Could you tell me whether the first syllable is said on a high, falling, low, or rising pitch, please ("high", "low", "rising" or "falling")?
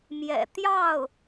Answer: low